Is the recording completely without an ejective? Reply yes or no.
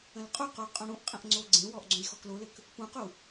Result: no